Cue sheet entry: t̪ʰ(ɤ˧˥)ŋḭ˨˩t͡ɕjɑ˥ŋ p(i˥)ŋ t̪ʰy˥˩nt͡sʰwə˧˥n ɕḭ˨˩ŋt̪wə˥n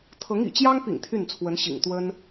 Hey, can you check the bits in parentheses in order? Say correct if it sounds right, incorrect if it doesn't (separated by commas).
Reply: correct, incorrect